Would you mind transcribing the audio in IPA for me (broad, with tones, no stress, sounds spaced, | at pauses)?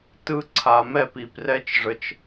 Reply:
t ɯ˧ ǀʰ a˨ m ɛ˦˨ p i˨ p r ɛ˦ t͡ʃ ʐ ə˧ t͡ʃ